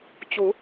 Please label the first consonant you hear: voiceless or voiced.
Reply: voiceless